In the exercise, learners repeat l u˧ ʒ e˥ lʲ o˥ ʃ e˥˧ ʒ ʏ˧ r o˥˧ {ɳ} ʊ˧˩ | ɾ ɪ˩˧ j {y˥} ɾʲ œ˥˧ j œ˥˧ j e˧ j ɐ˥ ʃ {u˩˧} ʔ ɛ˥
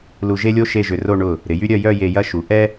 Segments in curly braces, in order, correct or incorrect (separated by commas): correct, correct, correct